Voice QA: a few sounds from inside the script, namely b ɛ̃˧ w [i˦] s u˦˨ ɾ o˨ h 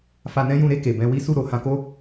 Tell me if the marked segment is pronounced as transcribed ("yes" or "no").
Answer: yes